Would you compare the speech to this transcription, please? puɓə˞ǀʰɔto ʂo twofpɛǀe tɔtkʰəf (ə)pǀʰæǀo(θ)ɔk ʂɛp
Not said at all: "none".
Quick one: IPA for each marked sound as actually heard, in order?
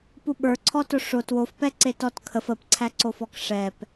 ə, f

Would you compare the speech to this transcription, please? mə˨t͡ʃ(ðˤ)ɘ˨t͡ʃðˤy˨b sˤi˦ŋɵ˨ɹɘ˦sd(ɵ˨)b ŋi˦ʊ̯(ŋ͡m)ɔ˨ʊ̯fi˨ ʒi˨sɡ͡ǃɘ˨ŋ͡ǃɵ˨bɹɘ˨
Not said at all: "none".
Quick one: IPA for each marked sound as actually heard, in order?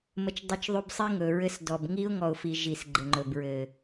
dˤ, ɔ˨, ŋ

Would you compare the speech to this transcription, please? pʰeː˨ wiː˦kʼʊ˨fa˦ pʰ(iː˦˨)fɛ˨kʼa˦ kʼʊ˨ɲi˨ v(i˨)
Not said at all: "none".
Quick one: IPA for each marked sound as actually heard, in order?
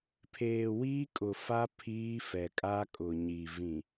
iː˦, ĩ˨

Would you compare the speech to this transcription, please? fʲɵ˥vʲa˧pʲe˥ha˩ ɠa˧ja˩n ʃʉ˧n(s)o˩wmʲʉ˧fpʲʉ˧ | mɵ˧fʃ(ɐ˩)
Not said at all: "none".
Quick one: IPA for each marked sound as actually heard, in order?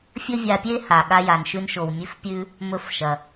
ʃ, ɐ˩

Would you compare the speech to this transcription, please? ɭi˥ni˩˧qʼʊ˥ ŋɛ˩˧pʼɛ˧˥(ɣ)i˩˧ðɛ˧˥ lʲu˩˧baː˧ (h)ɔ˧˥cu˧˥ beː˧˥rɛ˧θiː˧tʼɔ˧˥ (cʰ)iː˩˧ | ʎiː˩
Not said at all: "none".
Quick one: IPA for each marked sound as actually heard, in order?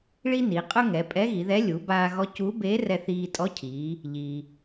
ɣ, ɣ, cʰ

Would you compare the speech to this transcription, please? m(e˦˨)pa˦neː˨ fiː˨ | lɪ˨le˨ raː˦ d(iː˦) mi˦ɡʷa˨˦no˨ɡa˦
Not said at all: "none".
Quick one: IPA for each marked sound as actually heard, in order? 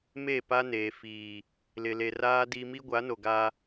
e˦˨, i˦

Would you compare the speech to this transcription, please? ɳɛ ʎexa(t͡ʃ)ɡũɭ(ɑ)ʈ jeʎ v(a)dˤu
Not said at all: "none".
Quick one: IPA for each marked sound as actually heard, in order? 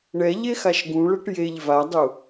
ʃ, ɐ, a

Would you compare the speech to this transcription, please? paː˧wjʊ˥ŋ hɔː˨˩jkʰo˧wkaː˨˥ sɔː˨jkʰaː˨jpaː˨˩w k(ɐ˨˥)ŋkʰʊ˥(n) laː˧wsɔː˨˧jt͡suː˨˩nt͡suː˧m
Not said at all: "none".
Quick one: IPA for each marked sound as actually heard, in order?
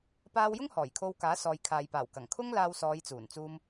ɐ˨˩, ŋ

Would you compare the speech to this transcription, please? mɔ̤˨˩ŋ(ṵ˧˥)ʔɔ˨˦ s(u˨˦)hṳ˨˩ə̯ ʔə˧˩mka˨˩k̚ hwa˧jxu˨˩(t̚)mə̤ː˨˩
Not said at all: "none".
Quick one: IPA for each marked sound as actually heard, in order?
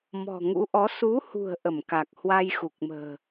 ṵ˧˥, u˨˦, k̚

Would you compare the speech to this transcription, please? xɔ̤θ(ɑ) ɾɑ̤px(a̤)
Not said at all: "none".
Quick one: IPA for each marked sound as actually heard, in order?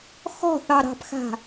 ɑ, a̤

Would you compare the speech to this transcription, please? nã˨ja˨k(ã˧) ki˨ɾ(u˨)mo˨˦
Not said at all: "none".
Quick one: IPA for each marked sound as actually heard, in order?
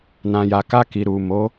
a˧, u˨

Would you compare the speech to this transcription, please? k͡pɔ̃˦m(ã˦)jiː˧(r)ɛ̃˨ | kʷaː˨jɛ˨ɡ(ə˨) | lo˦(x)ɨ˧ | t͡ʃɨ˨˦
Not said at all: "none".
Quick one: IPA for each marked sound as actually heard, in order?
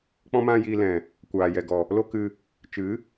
ã˦, l, ɔ˨, k

